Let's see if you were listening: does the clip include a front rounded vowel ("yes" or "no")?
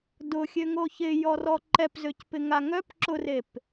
yes